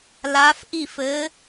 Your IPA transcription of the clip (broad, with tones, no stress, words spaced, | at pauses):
la˨˦fʔi˥˩f ɘ˨˦